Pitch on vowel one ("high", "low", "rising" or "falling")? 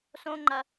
low